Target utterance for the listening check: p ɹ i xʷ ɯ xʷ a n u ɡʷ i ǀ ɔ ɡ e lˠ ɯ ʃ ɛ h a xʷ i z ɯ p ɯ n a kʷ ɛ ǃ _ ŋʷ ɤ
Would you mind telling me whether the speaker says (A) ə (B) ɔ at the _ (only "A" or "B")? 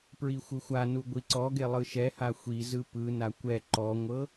B